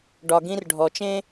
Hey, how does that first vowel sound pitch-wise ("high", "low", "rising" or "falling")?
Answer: low